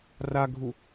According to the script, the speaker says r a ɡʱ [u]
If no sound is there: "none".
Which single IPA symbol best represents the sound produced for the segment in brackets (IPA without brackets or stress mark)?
u